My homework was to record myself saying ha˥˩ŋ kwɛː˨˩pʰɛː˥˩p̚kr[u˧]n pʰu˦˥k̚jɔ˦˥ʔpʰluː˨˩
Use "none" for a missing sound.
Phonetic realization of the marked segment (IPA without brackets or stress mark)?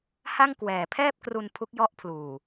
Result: u˧